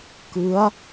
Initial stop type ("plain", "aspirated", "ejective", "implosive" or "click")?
plain